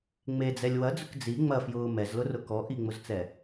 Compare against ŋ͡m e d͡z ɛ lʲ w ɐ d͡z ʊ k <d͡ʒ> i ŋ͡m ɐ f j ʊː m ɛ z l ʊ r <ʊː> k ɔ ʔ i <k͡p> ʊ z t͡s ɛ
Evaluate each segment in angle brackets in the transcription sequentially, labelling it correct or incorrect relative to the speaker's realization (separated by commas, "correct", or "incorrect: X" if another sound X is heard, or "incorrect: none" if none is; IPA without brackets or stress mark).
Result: incorrect: d͡z, incorrect: ʊ, incorrect: ŋ͡m